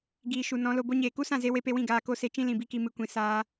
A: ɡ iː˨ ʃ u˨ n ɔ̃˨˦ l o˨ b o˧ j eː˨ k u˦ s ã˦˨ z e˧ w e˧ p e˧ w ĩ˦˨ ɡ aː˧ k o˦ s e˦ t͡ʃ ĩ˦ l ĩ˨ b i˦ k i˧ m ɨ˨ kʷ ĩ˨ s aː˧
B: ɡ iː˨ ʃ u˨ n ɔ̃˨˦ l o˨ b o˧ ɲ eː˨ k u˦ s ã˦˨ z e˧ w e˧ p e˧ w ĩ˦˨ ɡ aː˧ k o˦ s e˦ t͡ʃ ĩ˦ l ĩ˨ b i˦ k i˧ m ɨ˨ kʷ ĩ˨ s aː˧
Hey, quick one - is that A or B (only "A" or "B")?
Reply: B